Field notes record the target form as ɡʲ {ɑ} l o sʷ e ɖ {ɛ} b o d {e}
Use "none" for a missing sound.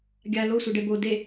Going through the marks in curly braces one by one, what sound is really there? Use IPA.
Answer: a, ɛ, e

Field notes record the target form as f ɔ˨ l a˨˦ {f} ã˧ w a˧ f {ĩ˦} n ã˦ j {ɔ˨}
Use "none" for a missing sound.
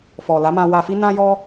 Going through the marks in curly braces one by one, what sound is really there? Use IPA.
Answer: m, i˦, ɔ˦

